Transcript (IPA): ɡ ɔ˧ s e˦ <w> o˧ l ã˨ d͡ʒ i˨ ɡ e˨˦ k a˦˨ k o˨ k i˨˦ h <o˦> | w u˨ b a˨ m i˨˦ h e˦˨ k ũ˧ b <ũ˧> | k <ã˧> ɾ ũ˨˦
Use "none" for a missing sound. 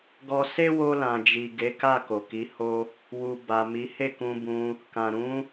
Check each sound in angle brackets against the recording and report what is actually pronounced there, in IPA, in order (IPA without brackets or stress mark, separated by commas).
w, o˦, ũ˧, ã˨